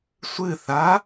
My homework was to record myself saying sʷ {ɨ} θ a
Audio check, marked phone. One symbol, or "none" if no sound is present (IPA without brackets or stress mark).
ɨ